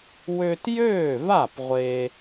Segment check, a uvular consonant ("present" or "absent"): present